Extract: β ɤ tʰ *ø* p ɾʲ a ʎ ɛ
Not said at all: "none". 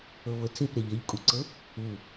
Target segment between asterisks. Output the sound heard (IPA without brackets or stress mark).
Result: e